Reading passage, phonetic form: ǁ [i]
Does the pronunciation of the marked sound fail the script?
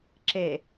yes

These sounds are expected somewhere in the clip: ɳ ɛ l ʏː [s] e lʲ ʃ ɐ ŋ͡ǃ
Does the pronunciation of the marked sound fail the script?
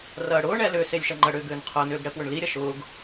no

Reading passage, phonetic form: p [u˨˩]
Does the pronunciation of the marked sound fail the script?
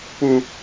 no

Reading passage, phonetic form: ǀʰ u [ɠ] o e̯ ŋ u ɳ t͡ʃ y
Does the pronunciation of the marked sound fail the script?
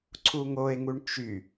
yes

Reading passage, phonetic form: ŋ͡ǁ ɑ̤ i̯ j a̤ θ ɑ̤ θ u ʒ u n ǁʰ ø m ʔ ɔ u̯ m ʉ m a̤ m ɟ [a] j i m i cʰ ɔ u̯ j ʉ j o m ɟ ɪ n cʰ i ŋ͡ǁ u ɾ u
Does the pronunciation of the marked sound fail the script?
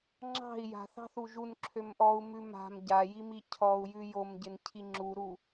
no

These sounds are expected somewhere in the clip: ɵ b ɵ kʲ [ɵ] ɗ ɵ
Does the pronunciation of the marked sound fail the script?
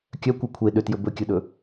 no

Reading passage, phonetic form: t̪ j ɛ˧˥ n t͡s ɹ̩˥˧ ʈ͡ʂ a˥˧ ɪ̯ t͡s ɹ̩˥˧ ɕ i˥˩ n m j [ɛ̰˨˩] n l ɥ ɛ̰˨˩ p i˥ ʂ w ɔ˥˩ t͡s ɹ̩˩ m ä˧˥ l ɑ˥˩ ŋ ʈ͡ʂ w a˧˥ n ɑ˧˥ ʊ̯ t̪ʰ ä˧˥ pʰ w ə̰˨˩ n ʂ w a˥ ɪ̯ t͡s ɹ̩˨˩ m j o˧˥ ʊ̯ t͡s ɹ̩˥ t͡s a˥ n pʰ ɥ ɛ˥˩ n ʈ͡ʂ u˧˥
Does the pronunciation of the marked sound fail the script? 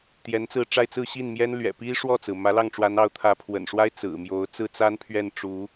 yes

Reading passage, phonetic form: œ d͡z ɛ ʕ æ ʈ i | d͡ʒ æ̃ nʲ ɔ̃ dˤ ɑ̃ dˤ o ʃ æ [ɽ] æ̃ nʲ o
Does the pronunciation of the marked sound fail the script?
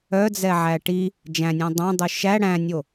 no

